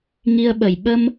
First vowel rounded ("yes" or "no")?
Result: no